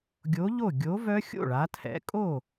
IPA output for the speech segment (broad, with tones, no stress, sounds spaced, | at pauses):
ɡʲ o˨˥ ʎ o˥˩ ɡʲ o˨˥ v œ˦˥ xʲ o̰˥˩ ɭ a˩˧ tʰ ɛ̰˩˧ kʼ o˥˩